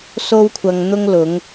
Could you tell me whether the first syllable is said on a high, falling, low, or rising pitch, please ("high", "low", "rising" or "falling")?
high